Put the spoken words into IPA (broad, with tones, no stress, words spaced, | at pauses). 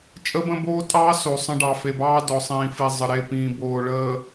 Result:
t͡ʃʼə˦bə̃˦boː˦ tʼɑː˦so˨ sˤə̃˦ɖɑ˨ fe˨bɑː˦ dɔ˨sˤĩː˨fi˨ zˤə˨ɾe˦˨ pĩː˨boː˨ ɭəː˨